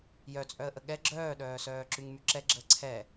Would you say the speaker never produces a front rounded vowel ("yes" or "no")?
no